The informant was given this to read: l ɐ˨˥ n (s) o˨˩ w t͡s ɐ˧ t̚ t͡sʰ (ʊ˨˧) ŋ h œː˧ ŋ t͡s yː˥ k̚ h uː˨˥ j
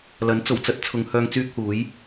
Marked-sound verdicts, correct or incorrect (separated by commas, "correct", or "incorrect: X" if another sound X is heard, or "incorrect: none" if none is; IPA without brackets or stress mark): incorrect: t͡s, correct